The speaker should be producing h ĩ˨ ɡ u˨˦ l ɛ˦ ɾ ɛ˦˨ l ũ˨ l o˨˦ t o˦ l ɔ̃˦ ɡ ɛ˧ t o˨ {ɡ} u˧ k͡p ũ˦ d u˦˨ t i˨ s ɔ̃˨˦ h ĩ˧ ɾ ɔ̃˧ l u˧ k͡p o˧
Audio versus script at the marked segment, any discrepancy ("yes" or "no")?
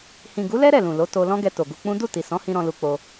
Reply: no